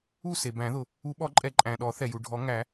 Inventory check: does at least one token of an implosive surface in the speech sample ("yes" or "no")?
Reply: yes